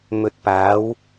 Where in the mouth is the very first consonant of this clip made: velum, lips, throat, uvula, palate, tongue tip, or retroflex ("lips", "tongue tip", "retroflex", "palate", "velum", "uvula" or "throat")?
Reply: lips